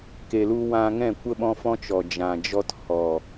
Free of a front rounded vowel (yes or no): yes